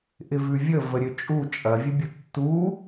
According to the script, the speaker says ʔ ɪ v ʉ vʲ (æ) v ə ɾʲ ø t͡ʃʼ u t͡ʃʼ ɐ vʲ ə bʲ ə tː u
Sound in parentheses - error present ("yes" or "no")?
yes